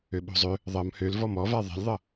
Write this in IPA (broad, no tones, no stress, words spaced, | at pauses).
øɓo̤zˤø | ðˤʌm høl vɔmɔva ðˤɛ̤lʲðˤʌ